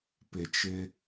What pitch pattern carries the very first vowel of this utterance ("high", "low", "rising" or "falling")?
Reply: low